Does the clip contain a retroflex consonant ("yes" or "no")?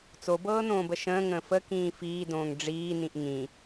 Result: yes